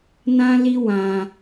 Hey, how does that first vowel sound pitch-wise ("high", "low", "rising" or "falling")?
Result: high